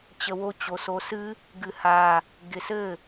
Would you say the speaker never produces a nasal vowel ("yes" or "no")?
yes